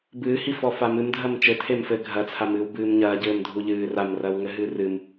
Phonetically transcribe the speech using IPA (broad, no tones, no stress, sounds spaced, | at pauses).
b ɨː h i f ɔ f a m ɨ m dʱ ɐ m t͡ʃ ɘ tʰ e m f ɘ ɡʱ ɐ t͡sʰ a m ɨː w b ɨː m ɲ ɐː ɟ ɘː m dʱ u ʎ ɨː r a m r ɐ w ŋ ɘ ɦ ɨː r ɨ m